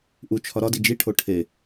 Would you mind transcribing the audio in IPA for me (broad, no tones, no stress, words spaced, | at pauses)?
ʔut͡ʃʰɒ ɾɒdi d͡ʒiʈʰo ʈʰe